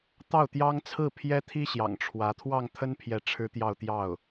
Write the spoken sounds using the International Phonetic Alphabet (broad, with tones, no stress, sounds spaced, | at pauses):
t̪ ɑ˥˩ ʊ̯ t̪ j ɑ˥ ŋ t͡sʰ ɹ̩˥˩ pʰ j ɛ˥ t̪ʰ i˥ ɕ j ɑ̰˨˩ ŋ ʈ͡ʂʰ w ä˧˥ t̪ʰ w ɑ˥˩ ŋ t̪ʰ ə˥ n pʰ j ɛ˧˥ ʈ͡ʂʰ ɻ̩˥ t̪ j ɑ˥˧ ʊ̯ t̪ j ɑ˥˩ ʊ̯